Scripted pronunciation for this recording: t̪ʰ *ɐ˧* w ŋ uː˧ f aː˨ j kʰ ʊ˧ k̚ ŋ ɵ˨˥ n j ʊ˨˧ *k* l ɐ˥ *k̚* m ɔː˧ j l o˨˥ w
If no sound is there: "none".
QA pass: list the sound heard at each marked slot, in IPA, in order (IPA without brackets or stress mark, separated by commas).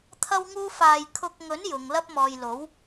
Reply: ɐ˧, ŋ, p̚